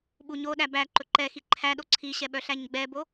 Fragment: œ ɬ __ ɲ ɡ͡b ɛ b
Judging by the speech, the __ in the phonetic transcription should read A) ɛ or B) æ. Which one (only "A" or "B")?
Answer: B